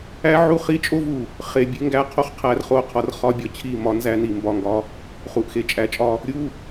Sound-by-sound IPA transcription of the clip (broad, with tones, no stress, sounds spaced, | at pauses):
æ˦ ʕ u˦ χ i˦ t͡ʃʼ o˦ v u˨ | χ e˨ bʲ e˦ ŋ ɡ æ˦ qʰ o˦˨ χ qʰ æ˦ r χ o˦˨ qʰ ɒ˦ r χ ɒ˦ bʲ ɒ˨ t͡ɕʰ i˦˨ m ɒ˦ n z æ˦ n i˨ m b ɒ˦˨ ŋ ɡ ɒ˦ | χ u˨ ʔ x e˨ t͡ʃʼ æ˨ t͡ʃʼ ɒ˦ | ɾʲ u˦